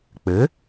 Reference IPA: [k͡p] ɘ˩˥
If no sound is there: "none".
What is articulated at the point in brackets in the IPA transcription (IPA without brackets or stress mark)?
k͡p